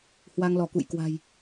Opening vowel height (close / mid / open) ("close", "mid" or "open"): open